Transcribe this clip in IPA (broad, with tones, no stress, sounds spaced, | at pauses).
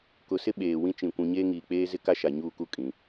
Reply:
k ʊ˨ s ɪ˦ ɓ eː˨ w ĩ˦ t͡ʃ ĩ˨ kʷ ũ˨ ɲ eː˦ ŋ iː˨ k͡p eː˦ z ɪ˦ k a˦ ʃ a˨ ɲ uː˦˨ k u˦ kʼ ĩ˨˦